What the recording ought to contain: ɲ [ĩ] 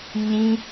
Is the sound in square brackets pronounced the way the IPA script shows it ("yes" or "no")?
yes